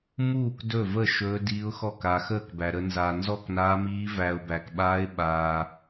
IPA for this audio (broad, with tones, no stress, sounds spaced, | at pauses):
m uː˥˨ k d ɵ˥˨ v ə˥˨ ʃ ɵː˦˥ d iː˦˥ ʊ̯ x ɔ˥˨ k a˧ x əː˥˨ k b æ˧ ɾ ə˦˥ n z aː˧ n z ɔ˥˨ k n aː˦˥ m iː˦˥ v æ˧ ʊ̯ b æ˧ k ɓ aː˦˥ ɪ̯ ɓ aː˧